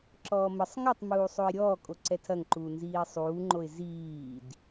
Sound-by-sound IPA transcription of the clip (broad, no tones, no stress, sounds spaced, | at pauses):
ǁ ɔː m ə sˤ ŋ ɐ tˤ m uː sˤ o ɪ̯ ɾʲ ɔː kʼ o ǀ ɛ tʰ ɐ ŋ ǃ uː n z iː sˤ uː ŋ͡ǃ o ɪ̯ z iː d